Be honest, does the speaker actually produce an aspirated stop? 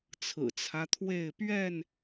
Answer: yes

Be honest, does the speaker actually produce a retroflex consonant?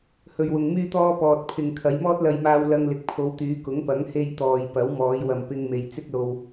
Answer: no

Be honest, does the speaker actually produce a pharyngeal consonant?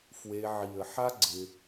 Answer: yes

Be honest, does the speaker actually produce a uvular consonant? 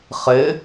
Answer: yes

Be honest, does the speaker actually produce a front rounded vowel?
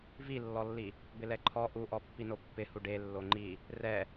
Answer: no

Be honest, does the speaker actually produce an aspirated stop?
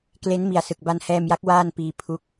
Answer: yes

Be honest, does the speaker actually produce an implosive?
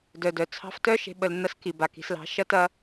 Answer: yes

